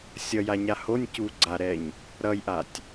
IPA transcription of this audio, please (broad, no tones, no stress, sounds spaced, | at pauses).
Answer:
sʲ ʌ j a ɲ a h o nʲ c u ɡ͡ǀ a ɾ ɛ ɲ | ɾ ʌ j ʔ a tʲ